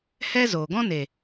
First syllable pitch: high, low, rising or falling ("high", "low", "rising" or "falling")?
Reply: high